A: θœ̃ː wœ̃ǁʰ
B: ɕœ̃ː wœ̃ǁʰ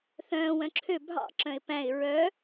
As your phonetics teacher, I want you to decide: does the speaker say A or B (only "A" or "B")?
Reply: A